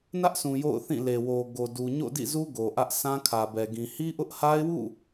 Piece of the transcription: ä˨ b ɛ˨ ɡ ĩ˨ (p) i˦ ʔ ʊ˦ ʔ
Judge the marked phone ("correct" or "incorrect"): incorrect